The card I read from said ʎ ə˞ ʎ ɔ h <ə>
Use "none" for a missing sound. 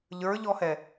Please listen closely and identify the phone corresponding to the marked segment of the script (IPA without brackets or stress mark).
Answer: ɛ